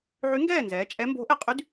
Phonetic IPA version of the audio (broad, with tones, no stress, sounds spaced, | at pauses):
ʕ y˧˥ ŋ ɡ ɛː˥˨ n z ɛː˩˧ t͡ʃʼ ɛ˧˥ m b o̤˧˥ ʔ ɛ˧˥ qʼ y˧˥ d